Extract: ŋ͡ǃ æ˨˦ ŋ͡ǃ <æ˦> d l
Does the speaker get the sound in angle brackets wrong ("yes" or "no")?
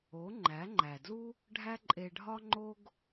yes